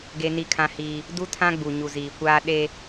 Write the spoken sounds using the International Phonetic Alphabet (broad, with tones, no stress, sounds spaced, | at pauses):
ɡ e˦ n i˦ kʰ ã˦ h iː˦ | d u˦ tʰ ã˦ ɡ͡b u˨ ɲ u˨ z iː˨ kʷ aː˦ ɗ e˦